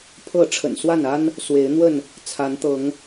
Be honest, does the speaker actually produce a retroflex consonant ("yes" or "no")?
yes